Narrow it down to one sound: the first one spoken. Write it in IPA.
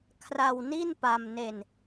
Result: kʰ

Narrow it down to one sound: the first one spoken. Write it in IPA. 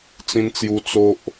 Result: t͡s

